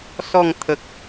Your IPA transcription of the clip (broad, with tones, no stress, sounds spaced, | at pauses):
s ɔ˥˧ ŋ t̪ʰ ə˨ k̚